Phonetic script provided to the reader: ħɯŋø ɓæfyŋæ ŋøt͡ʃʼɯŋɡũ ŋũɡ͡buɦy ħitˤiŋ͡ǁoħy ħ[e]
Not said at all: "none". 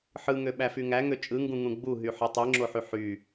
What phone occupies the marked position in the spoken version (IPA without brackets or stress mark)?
y